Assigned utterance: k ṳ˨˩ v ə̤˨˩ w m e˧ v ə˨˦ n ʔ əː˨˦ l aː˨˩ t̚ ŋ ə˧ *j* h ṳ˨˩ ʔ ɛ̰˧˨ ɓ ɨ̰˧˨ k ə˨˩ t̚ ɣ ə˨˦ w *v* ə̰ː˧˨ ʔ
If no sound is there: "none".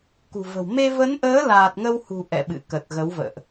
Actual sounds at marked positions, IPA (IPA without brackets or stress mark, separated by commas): w, v